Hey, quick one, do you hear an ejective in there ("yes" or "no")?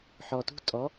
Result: yes